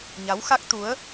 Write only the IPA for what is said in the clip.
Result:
ɲa˨˦wxa˦˥k̚t̪u˨˦ə̯

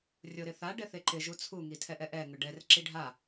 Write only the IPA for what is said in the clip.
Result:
rʲoɾɪθa ɖɛθeǃɪ ʒut͡sʰu ŋitʰɛʔɛʔɛ ŋʊɖɛr ǁiɖʱa

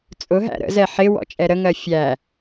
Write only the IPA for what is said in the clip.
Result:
t͡sʼʊɦæ̰ ɾə̰zɛ ħɪ wɔ̰t͡ʃʼɛɾəŋɜ fʲæ

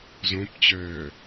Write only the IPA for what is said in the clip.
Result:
zõpt͡ɕœː

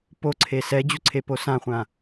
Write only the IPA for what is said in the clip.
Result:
poǀʰe sɛd͡ʑuǀʰepo sãχʷã

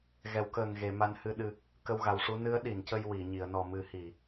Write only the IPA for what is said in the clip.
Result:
ɣɛ˨˩˨wkəː˨˩ŋɣe˨˩˨ ma˧˥nhɨ˧ɗɨ˧ | kə˧wɣa˨˩wʂu˧˥ nɨ˧˥ə̯ɗi˨˩˨ncə˧j wi˨˩˨ ɲi˨˩˨ə̯nɔ˨˩mɨ˨˩˦hi˨˩˨

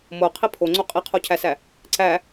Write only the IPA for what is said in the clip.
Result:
moqʰi pʰoŋ͡ǀo qʼiqʰocʰæsæ | ǀæ

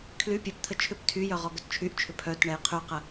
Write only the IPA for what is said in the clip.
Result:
kʰly pʲɛpt̪ʰə t͡ʃʰʏp tʰyjœ ʁɔɡœtt͡ʃʰyʔt͡ʃʰʏ pʰœt ɳɛjqʰyqə

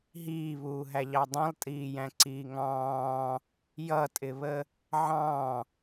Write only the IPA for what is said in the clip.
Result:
ɦiːβuːɦæʎɑ dˤĩlˠtʼiːjæ̃ǀiː ŋɑ̃ː | jʌtʼɪβə | ʕɑ̃

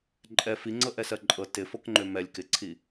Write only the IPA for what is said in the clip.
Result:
ǃʼɛ fiŋ͡ǀɤʔɛsɜ ǃʼɤ tɪfɤkŋ͡ǃø mɛlʲ kɪǀʰi

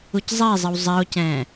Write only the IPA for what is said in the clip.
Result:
uczˤezˤɨw zˤeo̯cɛ̃ː

